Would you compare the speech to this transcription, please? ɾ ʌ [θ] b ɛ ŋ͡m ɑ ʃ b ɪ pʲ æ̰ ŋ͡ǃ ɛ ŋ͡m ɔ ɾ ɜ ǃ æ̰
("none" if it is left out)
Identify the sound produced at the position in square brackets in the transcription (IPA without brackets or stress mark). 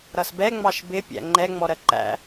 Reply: s